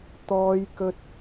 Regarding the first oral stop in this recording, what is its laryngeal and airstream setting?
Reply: plain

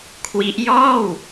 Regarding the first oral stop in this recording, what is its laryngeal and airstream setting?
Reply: aspirated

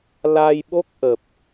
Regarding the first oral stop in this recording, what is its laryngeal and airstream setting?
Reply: implosive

